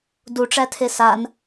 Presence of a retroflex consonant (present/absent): present